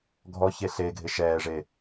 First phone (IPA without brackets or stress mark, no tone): ɡʱ